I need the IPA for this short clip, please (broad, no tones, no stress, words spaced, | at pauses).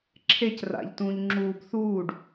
ǁʰec ra̰ʎ tũːʎŋ͡ǁuːb θuːɖ